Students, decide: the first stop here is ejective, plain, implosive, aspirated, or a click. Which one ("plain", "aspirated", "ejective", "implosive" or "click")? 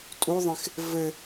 ejective